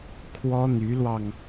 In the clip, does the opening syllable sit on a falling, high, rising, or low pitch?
high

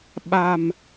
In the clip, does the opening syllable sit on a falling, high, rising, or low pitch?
low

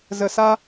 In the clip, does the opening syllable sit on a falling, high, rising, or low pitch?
low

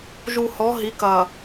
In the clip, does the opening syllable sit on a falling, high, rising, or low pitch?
low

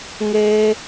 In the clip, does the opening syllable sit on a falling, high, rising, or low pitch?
high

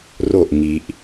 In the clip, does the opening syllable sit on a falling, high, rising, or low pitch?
falling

